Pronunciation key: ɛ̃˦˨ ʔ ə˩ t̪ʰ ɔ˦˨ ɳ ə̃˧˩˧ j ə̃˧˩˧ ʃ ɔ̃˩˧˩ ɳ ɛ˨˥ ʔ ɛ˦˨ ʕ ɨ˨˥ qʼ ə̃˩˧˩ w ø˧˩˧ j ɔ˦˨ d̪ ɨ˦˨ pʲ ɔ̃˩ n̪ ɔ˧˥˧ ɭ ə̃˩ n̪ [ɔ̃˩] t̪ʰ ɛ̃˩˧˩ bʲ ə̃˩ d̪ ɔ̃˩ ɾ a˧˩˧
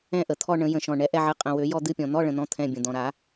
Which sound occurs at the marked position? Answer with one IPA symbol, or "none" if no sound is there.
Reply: ɔ̃˨˥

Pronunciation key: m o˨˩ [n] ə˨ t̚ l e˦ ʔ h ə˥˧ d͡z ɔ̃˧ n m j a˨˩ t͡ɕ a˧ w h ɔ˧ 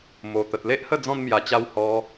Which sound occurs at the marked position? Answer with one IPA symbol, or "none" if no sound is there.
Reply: t̪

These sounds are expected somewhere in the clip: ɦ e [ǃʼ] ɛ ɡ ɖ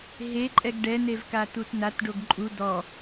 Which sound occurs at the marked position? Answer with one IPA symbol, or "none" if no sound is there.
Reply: ǃʼ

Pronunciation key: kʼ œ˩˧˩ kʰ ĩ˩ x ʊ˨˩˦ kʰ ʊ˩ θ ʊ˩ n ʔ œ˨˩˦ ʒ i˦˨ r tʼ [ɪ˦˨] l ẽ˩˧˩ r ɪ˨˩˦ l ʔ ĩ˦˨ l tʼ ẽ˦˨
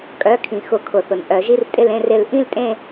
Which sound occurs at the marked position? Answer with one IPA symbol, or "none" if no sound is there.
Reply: ɪ˦˨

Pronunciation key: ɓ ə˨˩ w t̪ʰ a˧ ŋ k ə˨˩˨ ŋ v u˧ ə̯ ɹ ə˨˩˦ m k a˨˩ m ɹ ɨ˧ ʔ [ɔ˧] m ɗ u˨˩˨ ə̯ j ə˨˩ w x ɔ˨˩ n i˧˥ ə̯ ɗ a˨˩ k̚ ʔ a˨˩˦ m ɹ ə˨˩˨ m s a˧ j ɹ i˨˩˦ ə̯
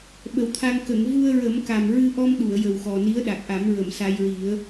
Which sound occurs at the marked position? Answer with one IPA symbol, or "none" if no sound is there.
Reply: ɔ˧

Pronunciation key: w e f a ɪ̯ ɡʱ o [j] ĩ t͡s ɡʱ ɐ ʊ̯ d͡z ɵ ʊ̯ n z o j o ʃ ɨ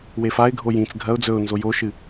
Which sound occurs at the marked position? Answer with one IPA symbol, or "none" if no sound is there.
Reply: j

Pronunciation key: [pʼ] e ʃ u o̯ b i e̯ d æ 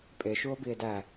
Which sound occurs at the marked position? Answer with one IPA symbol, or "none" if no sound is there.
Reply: pʼ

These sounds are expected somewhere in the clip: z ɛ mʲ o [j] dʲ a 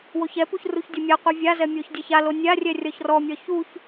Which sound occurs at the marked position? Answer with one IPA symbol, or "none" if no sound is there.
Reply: ç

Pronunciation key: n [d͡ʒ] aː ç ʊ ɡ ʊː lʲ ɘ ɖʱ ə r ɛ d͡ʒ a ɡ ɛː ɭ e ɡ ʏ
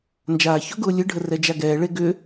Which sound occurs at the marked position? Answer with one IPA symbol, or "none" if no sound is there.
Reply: d͡ʒ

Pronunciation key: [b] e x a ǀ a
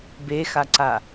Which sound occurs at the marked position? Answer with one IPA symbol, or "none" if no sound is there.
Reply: b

